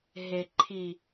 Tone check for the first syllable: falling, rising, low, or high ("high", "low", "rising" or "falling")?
low